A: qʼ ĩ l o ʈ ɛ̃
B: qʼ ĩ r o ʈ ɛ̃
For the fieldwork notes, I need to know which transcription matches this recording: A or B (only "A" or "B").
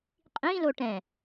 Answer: A